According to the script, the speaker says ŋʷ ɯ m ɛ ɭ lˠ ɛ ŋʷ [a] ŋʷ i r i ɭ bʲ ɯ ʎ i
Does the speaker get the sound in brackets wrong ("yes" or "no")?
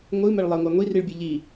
no